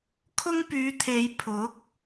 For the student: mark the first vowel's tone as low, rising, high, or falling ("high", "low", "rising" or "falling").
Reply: high